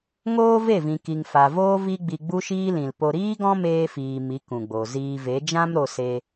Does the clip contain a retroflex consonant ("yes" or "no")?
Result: no